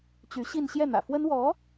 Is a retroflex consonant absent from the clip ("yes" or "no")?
yes